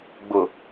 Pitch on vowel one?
low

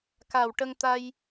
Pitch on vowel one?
low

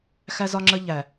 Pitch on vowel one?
high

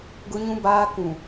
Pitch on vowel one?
high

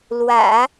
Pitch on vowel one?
low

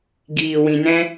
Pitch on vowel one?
low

